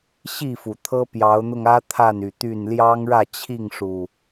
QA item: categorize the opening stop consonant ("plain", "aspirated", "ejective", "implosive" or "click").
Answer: aspirated